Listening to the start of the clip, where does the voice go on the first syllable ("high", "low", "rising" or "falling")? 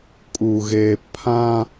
low